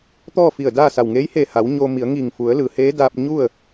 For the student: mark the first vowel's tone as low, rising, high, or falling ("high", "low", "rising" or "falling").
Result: falling